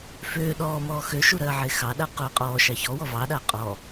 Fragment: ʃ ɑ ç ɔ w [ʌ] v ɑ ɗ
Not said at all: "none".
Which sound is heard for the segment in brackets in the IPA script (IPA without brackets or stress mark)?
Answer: ɔ